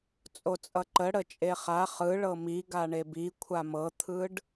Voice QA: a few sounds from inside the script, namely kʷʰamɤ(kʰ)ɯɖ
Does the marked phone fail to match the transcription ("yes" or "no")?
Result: yes